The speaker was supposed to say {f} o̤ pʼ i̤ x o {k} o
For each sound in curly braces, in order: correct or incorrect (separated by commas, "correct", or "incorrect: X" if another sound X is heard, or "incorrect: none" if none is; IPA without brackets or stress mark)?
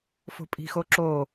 correct, incorrect: ǁ